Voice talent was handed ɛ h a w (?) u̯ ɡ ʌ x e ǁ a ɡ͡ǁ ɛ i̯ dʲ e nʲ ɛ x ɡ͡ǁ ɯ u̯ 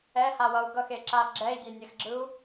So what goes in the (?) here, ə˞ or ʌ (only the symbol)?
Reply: ʌ